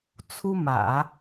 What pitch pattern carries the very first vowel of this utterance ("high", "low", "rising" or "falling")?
high